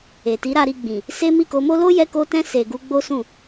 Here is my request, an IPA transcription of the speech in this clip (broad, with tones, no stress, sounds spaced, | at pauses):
e˨ t i˨˦ ɾ a˧ ɾ i˧ ɡ͡b ĩ˨ | s e˦ m i˦˨ k o˧ m o˦ l o˦ j ɛ˧ k o˧ t ɛ̃˧ s e˨ ɡ u˧ ɡ͡b o˦ s ũ˦˨